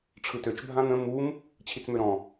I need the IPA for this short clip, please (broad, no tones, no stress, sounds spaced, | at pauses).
ʈ͡ʂʰ ɯ t ø t͡ʃ bʱ ã n̪ ə̃ m u m | t͡ɕʰ i t͡s m ø ɾ ɔ̃